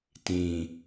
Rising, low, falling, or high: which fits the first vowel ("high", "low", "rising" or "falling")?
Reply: low